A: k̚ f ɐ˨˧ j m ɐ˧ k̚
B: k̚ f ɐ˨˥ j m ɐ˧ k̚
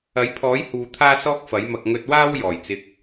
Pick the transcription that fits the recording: B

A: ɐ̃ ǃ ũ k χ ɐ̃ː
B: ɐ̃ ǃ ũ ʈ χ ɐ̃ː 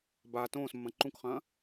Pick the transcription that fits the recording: A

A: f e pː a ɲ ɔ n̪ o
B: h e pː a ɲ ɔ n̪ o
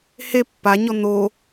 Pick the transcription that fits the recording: B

